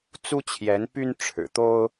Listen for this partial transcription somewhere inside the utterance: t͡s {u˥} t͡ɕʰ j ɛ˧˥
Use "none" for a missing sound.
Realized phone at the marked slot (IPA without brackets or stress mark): u˥